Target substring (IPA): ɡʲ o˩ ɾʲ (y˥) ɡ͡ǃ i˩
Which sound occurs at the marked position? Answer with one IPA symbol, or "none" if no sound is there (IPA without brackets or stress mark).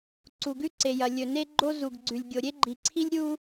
e˥